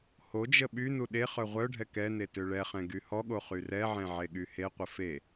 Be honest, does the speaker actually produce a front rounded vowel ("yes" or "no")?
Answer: yes